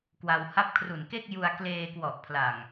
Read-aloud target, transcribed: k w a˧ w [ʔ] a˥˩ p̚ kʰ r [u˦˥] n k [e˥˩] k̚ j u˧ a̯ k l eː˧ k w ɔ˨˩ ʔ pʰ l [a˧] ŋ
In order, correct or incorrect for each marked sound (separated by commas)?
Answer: incorrect, incorrect, correct, incorrect